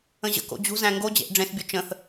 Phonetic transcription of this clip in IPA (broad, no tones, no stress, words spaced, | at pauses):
ə̃ʑə̰ko̰ d͡ʑṳzæ̃ ŋɡod͡ʑḛʔ ɖ͡ʐẽsbʲu t͡ʃə̃θ